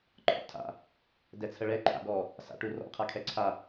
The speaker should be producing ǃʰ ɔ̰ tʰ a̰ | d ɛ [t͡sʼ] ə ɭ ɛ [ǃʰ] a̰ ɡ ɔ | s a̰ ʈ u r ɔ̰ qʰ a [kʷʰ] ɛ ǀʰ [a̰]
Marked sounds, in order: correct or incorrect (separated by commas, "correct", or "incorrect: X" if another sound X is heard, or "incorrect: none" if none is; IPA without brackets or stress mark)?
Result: incorrect: t͡sʰ, correct, incorrect: kʰ, incorrect: a